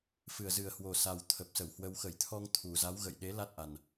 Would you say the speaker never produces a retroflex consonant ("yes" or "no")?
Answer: yes